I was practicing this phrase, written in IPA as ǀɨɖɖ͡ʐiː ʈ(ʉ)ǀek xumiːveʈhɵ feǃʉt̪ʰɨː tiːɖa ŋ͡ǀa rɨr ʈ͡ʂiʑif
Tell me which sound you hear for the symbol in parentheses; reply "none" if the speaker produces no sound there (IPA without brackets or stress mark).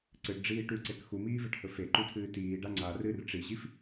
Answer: ʉ